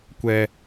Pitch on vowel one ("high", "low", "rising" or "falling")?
high